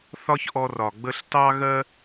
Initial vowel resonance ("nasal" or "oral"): oral